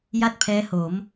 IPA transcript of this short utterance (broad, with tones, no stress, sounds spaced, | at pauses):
j a˥˩ t̚ pʰ ɛː˦˥ h o˩˦ m